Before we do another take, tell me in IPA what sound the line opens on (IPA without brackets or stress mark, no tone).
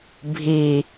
bʱ